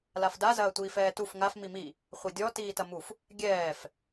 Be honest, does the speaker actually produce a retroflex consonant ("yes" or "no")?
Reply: no